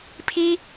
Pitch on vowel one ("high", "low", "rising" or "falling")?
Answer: high